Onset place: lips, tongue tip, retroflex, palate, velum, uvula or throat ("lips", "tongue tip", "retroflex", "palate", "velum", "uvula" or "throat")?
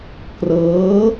velum